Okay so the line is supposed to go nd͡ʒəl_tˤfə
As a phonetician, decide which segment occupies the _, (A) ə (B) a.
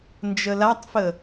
B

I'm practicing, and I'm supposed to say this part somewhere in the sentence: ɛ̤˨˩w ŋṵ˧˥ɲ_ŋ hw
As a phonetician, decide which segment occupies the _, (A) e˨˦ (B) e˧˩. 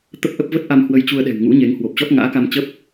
A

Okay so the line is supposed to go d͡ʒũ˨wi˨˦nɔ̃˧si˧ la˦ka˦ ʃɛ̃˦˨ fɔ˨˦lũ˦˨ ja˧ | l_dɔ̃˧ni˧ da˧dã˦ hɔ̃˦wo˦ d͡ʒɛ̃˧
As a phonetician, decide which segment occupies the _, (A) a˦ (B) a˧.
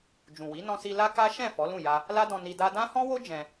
A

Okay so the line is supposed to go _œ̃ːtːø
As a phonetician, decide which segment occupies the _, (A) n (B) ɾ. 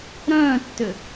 B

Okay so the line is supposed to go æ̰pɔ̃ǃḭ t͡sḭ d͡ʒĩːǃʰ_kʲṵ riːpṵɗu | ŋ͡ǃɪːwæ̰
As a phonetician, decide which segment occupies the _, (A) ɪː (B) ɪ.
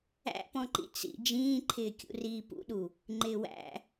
A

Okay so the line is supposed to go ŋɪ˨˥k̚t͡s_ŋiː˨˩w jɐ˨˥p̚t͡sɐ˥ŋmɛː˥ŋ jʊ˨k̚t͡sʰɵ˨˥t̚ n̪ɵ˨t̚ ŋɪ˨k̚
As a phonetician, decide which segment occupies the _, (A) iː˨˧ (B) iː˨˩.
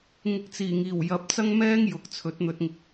B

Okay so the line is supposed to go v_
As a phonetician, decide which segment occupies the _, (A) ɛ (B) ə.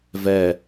A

